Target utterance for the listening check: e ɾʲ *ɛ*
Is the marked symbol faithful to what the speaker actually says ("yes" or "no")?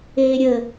no